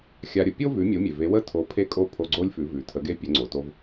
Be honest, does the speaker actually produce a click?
yes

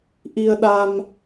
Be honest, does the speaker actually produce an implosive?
yes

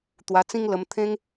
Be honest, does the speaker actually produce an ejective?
no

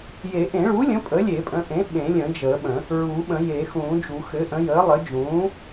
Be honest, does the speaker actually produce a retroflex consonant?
yes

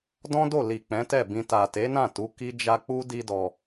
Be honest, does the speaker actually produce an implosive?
no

